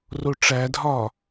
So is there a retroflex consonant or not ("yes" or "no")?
yes